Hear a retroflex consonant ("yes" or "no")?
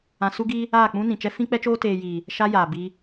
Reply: no